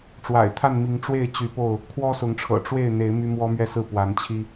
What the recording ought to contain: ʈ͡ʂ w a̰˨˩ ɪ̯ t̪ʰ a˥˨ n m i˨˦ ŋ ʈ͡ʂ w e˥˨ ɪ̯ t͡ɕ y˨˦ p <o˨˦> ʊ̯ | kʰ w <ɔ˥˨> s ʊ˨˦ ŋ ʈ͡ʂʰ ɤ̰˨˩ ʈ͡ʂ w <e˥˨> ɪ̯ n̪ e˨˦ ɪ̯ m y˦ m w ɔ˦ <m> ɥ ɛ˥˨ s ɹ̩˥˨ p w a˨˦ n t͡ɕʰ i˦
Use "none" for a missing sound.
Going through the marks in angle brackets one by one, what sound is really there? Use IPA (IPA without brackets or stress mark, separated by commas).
o˥˨, ɔ˦, e˥˨, m